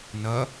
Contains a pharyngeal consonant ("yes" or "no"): no